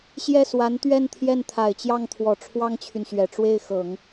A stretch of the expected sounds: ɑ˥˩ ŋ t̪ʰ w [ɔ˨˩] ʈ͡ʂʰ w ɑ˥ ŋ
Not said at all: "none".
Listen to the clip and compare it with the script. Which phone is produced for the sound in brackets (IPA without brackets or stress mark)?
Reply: ɔ˨˩